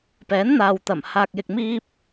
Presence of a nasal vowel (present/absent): absent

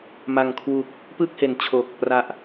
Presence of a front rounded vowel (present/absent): absent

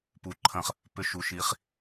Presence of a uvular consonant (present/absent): present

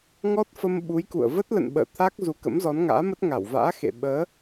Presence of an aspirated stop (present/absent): present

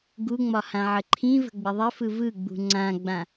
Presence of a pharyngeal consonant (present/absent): present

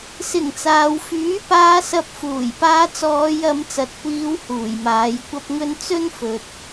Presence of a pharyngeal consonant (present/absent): absent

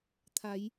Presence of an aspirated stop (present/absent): present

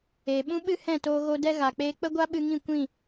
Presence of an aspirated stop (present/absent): absent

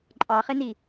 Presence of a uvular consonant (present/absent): present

